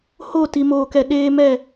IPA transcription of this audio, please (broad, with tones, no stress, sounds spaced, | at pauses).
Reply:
h o˦˨ t i˨ m oː˨ k ɛ˨ ɗ eː˦ m ɛ˦˨